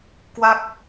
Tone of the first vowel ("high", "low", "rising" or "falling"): falling